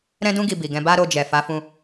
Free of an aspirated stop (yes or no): yes